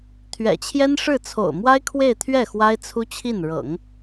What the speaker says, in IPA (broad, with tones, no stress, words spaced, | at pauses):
t̪ʰɥɛ̰˨˩t͡ɕʰjɛ˥nʂɻ̩˥˩ t͡sʰo̰˨˩ʊ̯mwa˥ɪ̯kʰwe˥˧ɪ̯t̪ʰɥɛ˥˩ xwa˥ɪ̯t͡sʰu˥t͡ɕʰi˥˩n ɻɤ̰˨˩˦ŋ